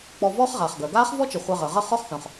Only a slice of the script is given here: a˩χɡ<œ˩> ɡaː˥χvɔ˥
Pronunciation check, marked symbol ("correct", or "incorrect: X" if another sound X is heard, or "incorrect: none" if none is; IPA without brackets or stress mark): correct